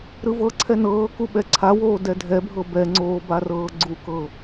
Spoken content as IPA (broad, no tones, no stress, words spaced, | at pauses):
ɾɯvɤǀʰɛ nɤː kuɓɛǀʰawoː dɛdʱɛbʱɤ bɛŋ͡ǀoː barɤːɡ͡ǀukɤ